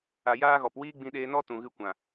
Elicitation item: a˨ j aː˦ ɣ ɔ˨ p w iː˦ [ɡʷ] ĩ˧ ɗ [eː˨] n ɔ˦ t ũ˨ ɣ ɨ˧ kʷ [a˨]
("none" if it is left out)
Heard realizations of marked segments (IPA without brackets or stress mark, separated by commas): ɡ͡b, eː˧, ã˨